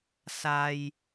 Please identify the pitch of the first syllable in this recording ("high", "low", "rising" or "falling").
low